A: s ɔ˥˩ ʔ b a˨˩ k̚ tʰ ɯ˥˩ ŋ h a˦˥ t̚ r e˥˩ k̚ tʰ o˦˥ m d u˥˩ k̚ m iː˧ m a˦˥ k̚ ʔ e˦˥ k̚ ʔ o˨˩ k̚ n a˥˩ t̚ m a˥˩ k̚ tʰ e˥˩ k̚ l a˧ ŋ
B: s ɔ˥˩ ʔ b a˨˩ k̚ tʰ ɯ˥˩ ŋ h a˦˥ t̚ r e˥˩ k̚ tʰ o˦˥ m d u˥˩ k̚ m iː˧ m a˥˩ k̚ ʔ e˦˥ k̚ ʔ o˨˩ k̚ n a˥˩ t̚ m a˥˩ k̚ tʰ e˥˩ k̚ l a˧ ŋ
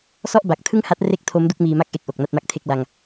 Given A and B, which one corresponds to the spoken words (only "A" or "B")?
B